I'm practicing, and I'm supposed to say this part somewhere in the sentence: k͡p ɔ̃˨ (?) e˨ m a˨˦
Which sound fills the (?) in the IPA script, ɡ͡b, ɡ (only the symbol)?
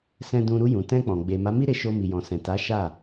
ɡ͡b